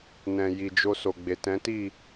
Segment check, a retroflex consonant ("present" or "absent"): absent